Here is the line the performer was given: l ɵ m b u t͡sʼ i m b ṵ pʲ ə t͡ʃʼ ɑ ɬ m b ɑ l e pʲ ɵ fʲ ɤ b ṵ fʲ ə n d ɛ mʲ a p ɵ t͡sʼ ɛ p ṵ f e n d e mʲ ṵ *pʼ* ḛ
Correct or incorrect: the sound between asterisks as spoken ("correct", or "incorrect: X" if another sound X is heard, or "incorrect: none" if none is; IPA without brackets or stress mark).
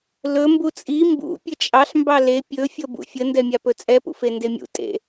incorrect: tʼ